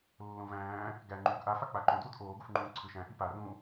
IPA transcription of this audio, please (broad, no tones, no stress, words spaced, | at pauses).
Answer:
lːõvæ̃ː | ɡæ ŋ͡ǃuːɡʔa fak͡paǃõ dwudʔoː ɡufŋ͡ǃũːǀʰɯʃæ̃ ʔipa rũ